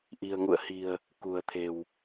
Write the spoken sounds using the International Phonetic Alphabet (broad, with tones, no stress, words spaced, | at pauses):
ʔi̤˨˩ə̯ŋṵ˧˨ə̯hi̤˨˩ə̯ | kṳ˨˩ə̯t̪ʰe̤˨˩w